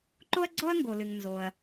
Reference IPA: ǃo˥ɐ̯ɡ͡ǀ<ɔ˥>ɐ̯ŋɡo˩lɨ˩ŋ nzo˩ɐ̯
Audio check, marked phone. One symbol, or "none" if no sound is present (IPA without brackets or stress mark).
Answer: ɔ˥